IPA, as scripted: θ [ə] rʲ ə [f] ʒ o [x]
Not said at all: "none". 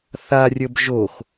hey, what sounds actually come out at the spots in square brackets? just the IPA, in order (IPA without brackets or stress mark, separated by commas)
a, b, x